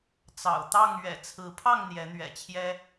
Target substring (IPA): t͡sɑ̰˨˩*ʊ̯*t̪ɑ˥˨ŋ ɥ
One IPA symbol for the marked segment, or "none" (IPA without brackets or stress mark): ʊ̯